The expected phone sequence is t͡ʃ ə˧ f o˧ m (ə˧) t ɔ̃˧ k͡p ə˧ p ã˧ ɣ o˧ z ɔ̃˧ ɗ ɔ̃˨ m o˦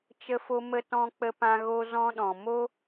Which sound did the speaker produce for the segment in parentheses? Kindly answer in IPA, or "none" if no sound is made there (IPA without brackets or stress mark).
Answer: ə˧